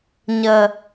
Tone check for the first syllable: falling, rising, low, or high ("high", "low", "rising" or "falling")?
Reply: low